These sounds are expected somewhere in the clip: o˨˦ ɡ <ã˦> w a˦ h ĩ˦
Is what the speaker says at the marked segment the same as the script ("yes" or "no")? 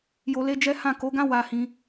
yes